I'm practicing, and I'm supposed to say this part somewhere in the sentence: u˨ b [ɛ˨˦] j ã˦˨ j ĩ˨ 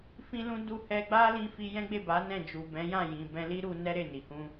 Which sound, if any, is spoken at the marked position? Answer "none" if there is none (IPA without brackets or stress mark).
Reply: ɛ̃˨˦